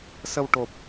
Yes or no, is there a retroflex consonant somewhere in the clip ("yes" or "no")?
yes